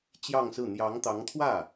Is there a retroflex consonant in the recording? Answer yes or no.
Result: no